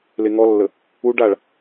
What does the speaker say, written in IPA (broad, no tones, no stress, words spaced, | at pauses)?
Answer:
leŋɔlːə | uɖaɭ